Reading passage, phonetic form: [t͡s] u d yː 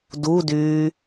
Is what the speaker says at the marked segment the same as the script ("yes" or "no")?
no